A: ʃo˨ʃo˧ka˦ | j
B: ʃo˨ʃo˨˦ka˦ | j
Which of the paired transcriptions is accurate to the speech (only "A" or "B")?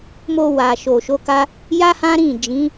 B